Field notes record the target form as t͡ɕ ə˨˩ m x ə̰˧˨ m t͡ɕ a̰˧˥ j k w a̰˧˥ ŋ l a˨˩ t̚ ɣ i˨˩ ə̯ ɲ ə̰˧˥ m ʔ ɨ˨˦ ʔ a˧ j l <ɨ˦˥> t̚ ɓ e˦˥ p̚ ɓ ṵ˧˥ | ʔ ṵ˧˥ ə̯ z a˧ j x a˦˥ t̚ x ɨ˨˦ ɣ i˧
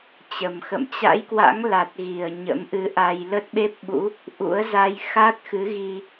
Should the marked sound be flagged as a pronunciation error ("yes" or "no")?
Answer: yes